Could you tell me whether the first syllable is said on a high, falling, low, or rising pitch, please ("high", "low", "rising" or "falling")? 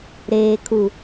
low